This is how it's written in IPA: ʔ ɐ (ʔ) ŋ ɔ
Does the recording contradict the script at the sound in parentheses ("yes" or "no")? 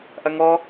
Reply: yes